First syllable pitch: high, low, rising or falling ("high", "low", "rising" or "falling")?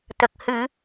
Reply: low